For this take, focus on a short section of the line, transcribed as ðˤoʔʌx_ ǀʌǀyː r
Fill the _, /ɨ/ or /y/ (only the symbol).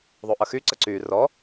y